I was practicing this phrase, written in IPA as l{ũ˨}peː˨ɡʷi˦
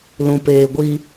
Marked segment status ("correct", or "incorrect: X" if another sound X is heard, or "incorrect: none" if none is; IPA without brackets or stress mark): correct